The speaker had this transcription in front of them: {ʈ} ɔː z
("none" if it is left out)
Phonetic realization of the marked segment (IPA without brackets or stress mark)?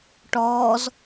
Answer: ʈ